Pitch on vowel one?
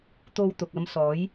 high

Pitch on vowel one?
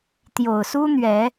low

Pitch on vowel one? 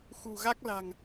low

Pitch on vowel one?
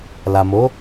low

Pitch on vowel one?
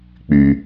low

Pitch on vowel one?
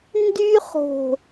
high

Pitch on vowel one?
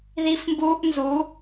high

